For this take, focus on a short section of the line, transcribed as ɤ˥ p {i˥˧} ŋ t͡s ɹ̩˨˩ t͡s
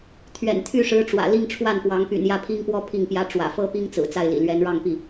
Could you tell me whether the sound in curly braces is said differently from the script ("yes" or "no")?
yes